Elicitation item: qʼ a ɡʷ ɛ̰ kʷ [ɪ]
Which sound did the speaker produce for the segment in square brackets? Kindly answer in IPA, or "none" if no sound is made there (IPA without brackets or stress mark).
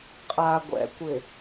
ɪ